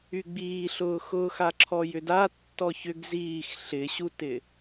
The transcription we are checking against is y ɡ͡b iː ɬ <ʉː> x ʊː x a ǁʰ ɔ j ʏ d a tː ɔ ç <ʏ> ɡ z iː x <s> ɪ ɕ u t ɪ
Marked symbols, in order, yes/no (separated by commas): no, yes, no